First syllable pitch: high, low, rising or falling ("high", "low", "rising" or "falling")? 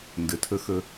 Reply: low